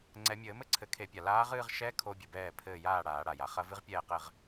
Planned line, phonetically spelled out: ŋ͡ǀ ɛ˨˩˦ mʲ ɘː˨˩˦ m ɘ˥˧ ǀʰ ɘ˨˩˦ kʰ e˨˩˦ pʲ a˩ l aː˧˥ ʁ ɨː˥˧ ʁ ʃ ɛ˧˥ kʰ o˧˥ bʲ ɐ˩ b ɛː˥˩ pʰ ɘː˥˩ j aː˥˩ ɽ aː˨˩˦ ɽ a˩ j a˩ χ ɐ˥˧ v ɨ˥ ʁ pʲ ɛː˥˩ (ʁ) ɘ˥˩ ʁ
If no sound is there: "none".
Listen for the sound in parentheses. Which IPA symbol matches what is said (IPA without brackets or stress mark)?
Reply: q